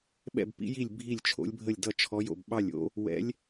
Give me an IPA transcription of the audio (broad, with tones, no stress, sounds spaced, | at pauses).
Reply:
ɓ ɛ̰˥˧ b p ḭ˦˥ j i˥˧ lʲ bʱ i˥˧ lʲ t͡ʃʰ o̰˦˥ lʲ bʱ ə˥˧ lʲ d ʌ˥˧ t͡ʃʰ ɔ˦˥ j o̰˥˧ b ɓ ɑ˥˧ lʲ o̰˦˥ | w ɛ̰˦˥ lʲ